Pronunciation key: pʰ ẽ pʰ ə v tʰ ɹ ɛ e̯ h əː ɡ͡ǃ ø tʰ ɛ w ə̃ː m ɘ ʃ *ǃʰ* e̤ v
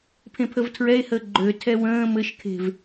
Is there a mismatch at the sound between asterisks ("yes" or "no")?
yes